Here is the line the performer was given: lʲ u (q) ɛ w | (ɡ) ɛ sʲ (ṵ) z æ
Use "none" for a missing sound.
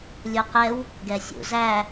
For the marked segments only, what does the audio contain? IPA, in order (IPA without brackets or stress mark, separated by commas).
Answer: q, ɡ, ṵ